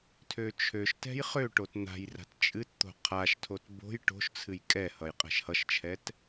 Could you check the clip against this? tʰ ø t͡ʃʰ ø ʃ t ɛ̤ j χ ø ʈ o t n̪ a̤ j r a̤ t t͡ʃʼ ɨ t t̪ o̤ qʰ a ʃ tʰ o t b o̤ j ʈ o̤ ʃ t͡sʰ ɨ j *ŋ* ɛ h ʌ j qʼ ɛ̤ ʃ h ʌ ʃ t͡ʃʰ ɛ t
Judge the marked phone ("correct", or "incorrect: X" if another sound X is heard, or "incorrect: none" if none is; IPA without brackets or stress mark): incorrect: kʼ